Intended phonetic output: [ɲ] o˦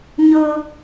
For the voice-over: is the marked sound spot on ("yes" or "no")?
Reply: yes